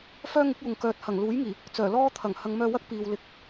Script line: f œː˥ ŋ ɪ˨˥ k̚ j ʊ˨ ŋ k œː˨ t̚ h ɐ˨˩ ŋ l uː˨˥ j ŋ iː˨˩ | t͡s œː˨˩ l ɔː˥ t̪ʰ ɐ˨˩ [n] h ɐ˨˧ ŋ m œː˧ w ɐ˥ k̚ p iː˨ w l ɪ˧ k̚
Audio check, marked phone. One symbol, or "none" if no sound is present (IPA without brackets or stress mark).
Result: ŋ